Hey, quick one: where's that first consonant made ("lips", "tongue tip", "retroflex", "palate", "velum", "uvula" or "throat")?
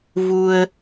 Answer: lips